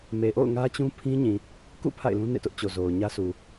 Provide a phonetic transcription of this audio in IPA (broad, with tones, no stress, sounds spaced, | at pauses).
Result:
m e˨ ʔ o̰˦˨ ʊ̯ ŋ ä˦ t͡ɕ ũ˦ pʰ ĩ˦ ɲ ĩ˨ | k ṵ˦˨ pʰ a̰˦˨ ɪ̯ l ũ˦ n ḛ˦˨ t ʊ˦ ʔ t͡ɕ o˨ z o˨ ʊ̯ ɲ ä˦ s u˨